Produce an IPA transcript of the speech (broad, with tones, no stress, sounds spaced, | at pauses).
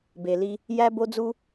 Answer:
b e˨ l i˧ | j æ˦ b o˦ d͡z u˦